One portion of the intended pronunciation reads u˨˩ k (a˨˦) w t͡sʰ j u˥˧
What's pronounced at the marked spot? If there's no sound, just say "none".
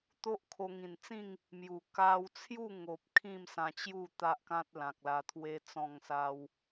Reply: a˧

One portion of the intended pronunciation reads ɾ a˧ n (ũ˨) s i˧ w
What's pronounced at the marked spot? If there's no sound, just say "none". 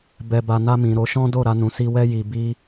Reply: ũ˨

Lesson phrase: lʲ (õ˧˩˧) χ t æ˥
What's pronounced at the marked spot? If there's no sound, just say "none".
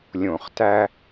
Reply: õ˧˩˧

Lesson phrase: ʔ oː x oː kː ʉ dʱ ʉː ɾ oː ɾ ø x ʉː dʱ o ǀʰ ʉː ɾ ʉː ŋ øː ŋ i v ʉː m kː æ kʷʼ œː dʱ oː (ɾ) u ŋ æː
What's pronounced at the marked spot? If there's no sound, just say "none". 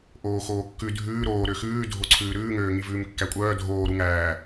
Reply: ɾ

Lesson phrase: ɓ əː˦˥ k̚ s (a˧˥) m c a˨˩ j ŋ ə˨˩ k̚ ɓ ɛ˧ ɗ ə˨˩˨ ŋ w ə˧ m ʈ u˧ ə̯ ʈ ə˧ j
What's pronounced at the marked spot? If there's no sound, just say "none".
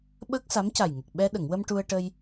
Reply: a˧˥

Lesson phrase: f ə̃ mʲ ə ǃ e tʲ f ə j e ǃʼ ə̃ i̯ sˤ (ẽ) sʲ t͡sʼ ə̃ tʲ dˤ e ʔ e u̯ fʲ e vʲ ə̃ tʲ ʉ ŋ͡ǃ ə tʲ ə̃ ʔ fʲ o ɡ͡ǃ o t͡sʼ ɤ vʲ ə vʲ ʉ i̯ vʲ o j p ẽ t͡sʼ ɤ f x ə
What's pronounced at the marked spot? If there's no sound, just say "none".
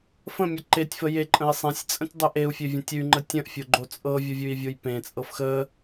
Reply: ẽ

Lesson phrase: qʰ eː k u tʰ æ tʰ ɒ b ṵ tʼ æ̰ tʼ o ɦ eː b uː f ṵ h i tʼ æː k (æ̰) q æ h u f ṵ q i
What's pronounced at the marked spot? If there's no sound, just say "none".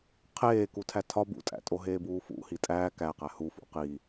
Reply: æ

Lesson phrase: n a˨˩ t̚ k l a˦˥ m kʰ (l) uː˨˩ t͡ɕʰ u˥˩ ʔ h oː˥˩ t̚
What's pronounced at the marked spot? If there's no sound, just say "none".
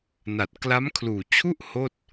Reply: l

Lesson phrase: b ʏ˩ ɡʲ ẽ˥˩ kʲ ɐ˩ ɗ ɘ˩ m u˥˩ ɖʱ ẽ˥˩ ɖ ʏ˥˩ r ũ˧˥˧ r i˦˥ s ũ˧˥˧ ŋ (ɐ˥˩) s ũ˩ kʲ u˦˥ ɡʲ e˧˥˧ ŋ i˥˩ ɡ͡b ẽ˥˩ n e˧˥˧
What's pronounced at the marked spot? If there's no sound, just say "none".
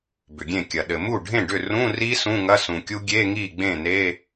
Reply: ɐ˧˥˧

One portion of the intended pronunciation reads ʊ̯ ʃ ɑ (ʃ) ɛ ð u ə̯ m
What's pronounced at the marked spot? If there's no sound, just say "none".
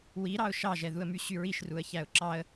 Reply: ʒ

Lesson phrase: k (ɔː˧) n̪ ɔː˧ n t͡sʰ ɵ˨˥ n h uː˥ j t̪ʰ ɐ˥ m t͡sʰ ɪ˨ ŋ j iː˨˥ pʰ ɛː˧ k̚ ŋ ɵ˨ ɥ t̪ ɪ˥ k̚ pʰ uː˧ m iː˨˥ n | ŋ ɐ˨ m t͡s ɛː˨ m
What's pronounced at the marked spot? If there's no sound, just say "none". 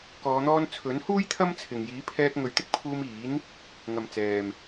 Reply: ɔː˨˧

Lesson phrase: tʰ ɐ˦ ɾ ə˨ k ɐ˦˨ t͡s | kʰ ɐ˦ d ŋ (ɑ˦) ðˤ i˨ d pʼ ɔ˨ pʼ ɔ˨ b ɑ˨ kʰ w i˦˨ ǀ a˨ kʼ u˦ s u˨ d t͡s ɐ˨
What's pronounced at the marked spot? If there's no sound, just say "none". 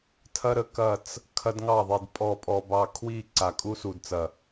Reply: ɑ˦˨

